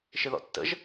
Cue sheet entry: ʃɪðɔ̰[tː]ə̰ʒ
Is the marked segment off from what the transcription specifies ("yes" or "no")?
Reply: no